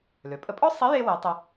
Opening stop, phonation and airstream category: ejective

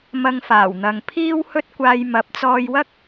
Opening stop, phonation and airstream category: aspirated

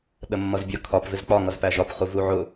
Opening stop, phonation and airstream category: implosive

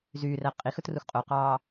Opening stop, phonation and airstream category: ejective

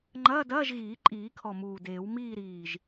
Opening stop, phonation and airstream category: click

